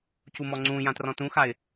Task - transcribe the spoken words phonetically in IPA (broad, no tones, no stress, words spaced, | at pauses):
cumɔŋ͡ǀũjã trɔ̃tũxaɪ̯